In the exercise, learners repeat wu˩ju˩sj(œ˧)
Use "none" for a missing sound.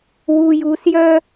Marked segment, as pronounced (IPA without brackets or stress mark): œ˧